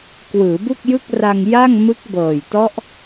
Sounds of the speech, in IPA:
k w ɯː˩˦ b u˥˩ k̚ j ɯ˥˩ k̚ r a˧ ŋ j a˥˩ ŋ m ɯ˦˥ k̚ b ɤː˨˩ j t ɔ˦˥ ʔ

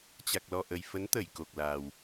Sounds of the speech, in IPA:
t͡ɕ a˨˩ k̚ l ɔ˨˩ ʔ ə˨˩ j f ə˨˦ n t̪ ə˧˩ j k o˨˩ k̚ l aː˨˩ w

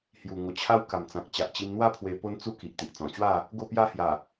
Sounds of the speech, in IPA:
h j u˨˩ ŋ o˨˩ t͡ɕʰ a˦ w k a˨˩ m t͡s ã˨ k̚ t͡ɕ a˨ ʔ t͡ɕ i˧ m n̪ w a˥˧ pʰ w e˧ p o˦ n t͡s u˦ k i˨ ʔ t̪ i˨ ʔ t͡s ɔ̃˨˩ t͡ɕ w a˥˧ | ɡ o˥˧ p j a˥˧ h j a˨˩

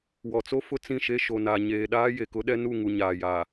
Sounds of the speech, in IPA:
w ɔ˨ t͡s o˦ f ʊ˦ t͡s ĩ˦˨ ʃ e˦ ʃ o˨ n a˨ ɲ eː˨ ɗ aː˦ j e˨ k ʊ˦ ɗ ɛ˦ n u˦˨ ŋ u˨ ɲ aː˨ j a˨

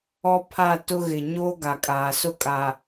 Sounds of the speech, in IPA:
ɔ˦ pʰ a˦˨ t ʊ˦ ɣ ɪ˨ ɲ o˦ ɡ a˨ kʼ aː˨ s ʊ˦ kʼ a˨

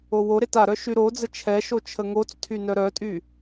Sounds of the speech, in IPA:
o w o ɾ e t a ɾ œ ʃ y ɾ o d͡z ə t͡ʃʰ ɛ ʃ o t͡ʃʰ ə ŋ o t͡s tʰ y n œ ɾ œ tʼ y

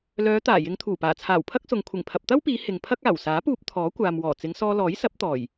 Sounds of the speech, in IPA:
l œː˨˧ t̪ aː˨˩ j ɪ˨˧ ŋ t̪ʰ uː˨˩ p aː˨˩ t͡sʰ aː˨˩ w pʰ ɐ˥ k̚ s ʊ˨ ŋ kʷʰ ɪ˨˩ ŋ pʰ ɐ˨ p̚ t̪ ɐ˥ w p iː˨˧ h ɪ˨ ŋ pʰ ɐ˥ k̚ aː˨˩ w s aː˨˥ p uː˧ p̚ t̪ʰ ɔː˨˥ kʷ aː˨ m w ɔː˨˩ t͡s ɪ˨˧ ŋ s ɔː˧ l ɔː˨˥ j s ɐ˨˥ p̚ t̪ ɔː˨˩ j

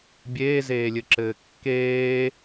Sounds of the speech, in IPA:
bʲ eː z eː lʲ ɘ ǁ ɘː kː eː

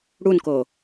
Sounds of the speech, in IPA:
ɽ u n k o

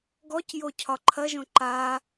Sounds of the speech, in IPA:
ɡ ɔ c j o cʰ ɒ ǃʰ ɐ ʒ õ ǃ a

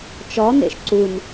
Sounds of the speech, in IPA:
t͡ʃ ɔ n ḛ ʃ ǀ u n

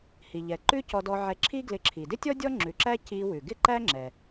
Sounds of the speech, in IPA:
h i˩ ʎ ɛ˩ ǃ ʉ˥ c ɔ˧ d ɔ˧ ʕ ɛ˧ ǁʰ i˥ ɡ l ɪ˧ ǁʰ i˩ d ɪ˥ tʲ ɔ˥ dʲ ɔ˥ ŋ͡ǁ ʉ˩ ǁ æ˥ c i˧ w ʉ˩ ɡ ɪ˥ ǃ æ˥ ŋ͡ǁ ɛ˩

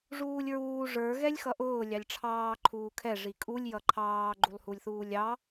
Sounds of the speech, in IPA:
ʐ uː lʲ ɹ uː ʐ ə˞ ɣ ɛ lʲ x ʌ ʔ ʊː lʲ ɑ lʲ ʈ͡ʂʰ ɑː ǃʰ uː kʰ ɛ ʐ i kʼ u lʲ j ʌ ǃʰ ɑː ɡ͡ǃ u lˠ h u lʲ θ uː lʲ ɑ

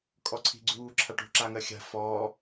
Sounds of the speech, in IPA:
kʼ ɔ ǀʰ i̤ ɡ͡ǀ uː ǁʰ a ʈ ṳ ǁ a ŋ ɜ xʲ a̤ f ɔː

